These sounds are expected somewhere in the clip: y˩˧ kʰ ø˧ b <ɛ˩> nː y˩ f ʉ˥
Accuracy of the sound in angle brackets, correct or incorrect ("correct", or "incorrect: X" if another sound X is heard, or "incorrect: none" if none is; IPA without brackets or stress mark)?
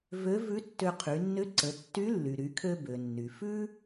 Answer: incorrect: ø˩